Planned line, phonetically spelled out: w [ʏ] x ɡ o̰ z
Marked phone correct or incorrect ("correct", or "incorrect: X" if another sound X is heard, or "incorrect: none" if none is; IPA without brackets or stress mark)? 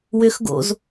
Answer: correct